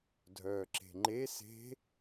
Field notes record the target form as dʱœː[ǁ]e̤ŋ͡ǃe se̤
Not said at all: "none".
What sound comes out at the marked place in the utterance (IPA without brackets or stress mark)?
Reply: ǁ